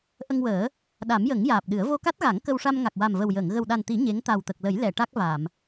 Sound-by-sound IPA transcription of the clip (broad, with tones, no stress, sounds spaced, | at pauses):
ʔ ə˧ ŋ w əː˨˩˦ | ɗ a˨˩˦ m j ə˨˩˦ ŋ j aː˨˩ p̚ ɗ ɨ˨˩˦ ə̯ v o˧ k a˦˥ t̚ ɣ a˨˩˦ ŋ k ə˧ w ʂ a˧ m ŋ a˨˩ k̚ w a˨˩ m v ə˨˩ w j əː˨˩˨ ŋ ɣ ə˨˩ w ɗ a˨˩ n t̪ i˨˩˦ ɲ e˧˥ ŋ t̪ a˨˩ w t̪ ə˨˩ k̚ l ə˨˩˦ j l ɛ˨˩˨ ʈ a˦˥ k̚ v a˨˩˨ m